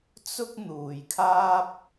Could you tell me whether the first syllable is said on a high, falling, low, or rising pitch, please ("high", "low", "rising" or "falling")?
high